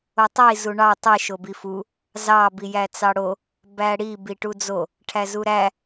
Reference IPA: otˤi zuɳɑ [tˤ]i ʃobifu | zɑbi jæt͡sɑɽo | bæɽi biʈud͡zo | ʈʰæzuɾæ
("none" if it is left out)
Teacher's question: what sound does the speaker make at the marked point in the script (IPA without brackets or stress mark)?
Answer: tˤ